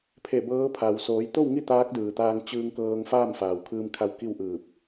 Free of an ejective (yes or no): yes